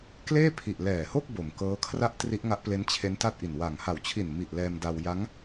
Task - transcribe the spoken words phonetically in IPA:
k l eː˥˩ pʰ i˨˩ ʔ l ɛː˨˩ h o˥˩ k̚ b o˨˩ m k ɤː˦˥ kʰ r a˥˩ ʔ t r i˦˥ ʔ ŋ a˦˥ ʔ p l e˦˥ n t͡ɕʰ e˦˥ n t a˥˩ t̚ ʔ i˨˩ n w a˨˩ ŋ h a˨˩ w t͡ɕʰ i˨˩ n m i˨˩ ʔ l ɛː˧ m d a˧ w j a˦˥ ŋ

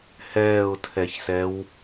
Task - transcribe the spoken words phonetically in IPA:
h ɛː ʊ̯ tʰ ɛ ç s ɛ w

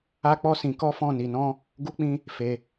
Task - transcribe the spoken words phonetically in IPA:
a˦ k͡p ɔ˦ s ĩ˧ k ɔ˦ f ɔ̃˦˨ n i˧ n ɔ̃˦ | ɡ u˦ k͡p ĩ˦ | f e˧

